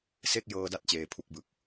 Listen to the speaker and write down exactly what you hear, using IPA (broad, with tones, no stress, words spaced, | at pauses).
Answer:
se˥˩k̚jɤː˧da˦˥t̚ t͡ɕeː˧pʰu˥˩k̚bɯ˨˩k̚